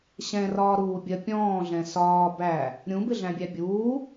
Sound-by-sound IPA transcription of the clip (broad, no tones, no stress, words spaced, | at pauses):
ɕɛ̃rɒːɾuːbʲɜ pʲɔ̃ːɮɛ̃ sɒː bæ | ɾʲũbɪɮæ̃bʲæ bʲuː